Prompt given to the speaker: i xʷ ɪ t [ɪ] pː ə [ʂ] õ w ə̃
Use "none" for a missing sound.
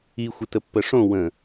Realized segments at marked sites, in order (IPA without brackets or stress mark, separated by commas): ə, ʂ